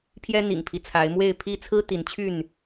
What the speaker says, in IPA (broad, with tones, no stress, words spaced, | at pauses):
pʰjɛ˦ n̪ḭ˨˩ŋpʰi˦ t͡sʰa˨˦ɪ̯mwe˥˨ɪ̯ pʰi˥˨ t͡sʰɹ̩˦ t̪i˨˦nt͡ɕʰy˥˨n